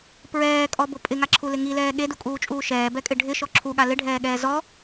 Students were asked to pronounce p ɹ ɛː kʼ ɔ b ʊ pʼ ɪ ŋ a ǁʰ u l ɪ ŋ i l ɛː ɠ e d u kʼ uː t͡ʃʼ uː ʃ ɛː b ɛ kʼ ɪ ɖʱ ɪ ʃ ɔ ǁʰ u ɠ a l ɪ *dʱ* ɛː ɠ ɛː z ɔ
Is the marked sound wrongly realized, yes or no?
yes